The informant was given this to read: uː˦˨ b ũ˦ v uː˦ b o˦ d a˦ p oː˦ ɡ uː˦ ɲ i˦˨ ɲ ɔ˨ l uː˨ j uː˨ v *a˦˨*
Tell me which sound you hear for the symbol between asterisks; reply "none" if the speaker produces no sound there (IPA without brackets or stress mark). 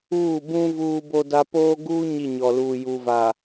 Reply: a˨